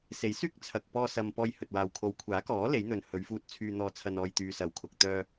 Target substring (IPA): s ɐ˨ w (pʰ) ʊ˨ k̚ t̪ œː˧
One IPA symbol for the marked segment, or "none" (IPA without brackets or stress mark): kʰ